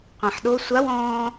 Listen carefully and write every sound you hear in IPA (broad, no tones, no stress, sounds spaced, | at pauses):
qʷ ã ħ ɗ o sʷ a w ɔ̃ː